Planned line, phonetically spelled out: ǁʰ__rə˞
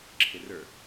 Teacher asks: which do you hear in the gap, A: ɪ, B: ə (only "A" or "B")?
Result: A